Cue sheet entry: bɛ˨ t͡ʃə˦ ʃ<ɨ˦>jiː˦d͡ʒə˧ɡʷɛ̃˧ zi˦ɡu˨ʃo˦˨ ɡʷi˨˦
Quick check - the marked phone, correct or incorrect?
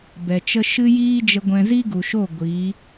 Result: correct